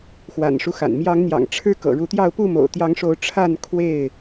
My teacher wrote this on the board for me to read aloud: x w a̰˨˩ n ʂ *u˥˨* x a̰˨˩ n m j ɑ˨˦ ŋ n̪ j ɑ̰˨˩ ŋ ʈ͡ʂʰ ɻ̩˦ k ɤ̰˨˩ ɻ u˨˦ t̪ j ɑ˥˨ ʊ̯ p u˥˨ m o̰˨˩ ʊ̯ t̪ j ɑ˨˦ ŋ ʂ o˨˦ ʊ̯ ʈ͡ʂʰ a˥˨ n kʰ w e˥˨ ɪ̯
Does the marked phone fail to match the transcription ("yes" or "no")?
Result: yes